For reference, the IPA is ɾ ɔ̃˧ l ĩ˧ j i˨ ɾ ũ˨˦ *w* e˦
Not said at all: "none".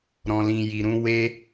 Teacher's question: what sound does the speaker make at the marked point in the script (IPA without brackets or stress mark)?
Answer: w